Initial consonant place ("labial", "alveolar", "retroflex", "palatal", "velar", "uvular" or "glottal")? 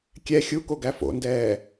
velar